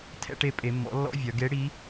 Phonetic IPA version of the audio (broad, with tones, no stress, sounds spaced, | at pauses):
tʰ ɛ̰˧˥˧ ʈ e˧˥ pʼ e˩˧ mː ɔ̰˩˥ lː ɔ̰˧˥˧ vʲ œ˩˧ ɡ e˧˥ ɽ i˧˥